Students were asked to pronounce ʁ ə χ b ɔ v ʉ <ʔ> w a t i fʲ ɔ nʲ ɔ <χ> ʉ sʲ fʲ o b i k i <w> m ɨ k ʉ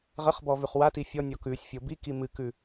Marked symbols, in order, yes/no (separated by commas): no, no, no